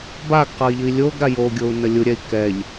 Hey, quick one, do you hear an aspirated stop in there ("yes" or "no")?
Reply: no